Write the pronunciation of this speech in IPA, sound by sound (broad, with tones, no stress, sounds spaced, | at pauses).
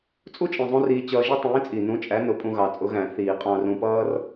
t͡sʼ u˥ t͡ʃʼ ĩ˨˩ zˤ ũ˧ r iː˧ t͡ɕ ʌː˧ ʒ i˥ tˤ ĩː˨˥ t͡sʼ i˨˩ n ũ˨˥ t͡ʃʼ æ˨˥ n ʊ˨˥ pʼ ũ˧ ɣ ɑ˨˩ t͡sʼ ʊ˨˥ ɣ æ̃˧˩˧ θ iː˧˩˧ qʼ ɑ̃˧ r ũ˧ p ʌː˥ r